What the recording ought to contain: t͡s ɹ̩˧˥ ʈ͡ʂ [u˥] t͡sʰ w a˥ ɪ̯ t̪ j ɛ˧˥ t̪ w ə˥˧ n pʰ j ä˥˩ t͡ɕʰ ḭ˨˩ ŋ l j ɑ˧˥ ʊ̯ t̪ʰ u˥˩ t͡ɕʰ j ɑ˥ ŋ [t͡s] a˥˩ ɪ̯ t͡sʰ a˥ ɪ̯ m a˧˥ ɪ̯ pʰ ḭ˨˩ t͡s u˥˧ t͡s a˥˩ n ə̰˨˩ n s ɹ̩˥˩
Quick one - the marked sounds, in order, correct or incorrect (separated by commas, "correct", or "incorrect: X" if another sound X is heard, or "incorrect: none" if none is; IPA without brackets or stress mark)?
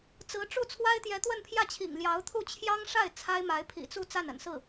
incorrect: u˥˩, incorrect: ʂ